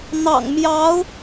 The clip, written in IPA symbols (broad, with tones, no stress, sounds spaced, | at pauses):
n̪ ɑ̰˨˩ ŋ m j ɑ˧˥ ʊ̯